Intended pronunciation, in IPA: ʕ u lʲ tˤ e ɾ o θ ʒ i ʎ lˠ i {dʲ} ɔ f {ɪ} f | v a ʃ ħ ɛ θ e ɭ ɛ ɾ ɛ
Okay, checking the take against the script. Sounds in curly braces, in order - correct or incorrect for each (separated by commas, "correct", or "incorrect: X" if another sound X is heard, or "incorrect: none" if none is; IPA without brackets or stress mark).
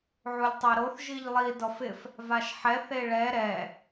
incorrect: d, correct